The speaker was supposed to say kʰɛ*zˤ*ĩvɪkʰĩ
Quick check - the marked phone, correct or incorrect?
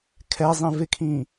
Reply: correct